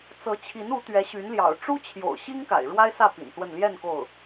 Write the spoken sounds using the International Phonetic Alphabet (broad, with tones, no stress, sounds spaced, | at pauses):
t͡s ɤ˧˥ t͡ɕʰ i˧˥ n u˧˥ t̪ ɥ ɛ˧˥ ɕ y˧˥ n l j ɑ̰˨˩ ʊ̯ ʈ͡ʂ u˥ t͡ɕʰ j o̰˨˩ ʊ̯ ɕ i˥ ŋ k a̰˨˩ ɪ̯ ɻ w a˥ ɪ̯ s ä˥˩ p ḭ˨˩ n s w ə˥˧ n l j ɛ˥˧ n k o˥˩ ʊ̯